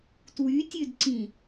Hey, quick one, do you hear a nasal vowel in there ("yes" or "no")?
yes